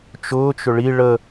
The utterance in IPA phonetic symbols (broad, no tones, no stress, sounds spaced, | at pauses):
t͡ʃ ʊː t͡ʃ ʏ ɭ i ɭ ə